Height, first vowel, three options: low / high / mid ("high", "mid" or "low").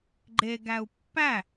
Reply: mid